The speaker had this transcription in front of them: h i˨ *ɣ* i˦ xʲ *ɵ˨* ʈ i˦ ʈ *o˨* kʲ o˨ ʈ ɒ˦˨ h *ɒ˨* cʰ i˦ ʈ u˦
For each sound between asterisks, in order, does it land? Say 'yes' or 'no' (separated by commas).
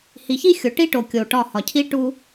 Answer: no, no, yes, yes